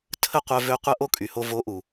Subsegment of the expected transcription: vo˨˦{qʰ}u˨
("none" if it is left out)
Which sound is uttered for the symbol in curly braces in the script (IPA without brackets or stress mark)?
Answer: ʔ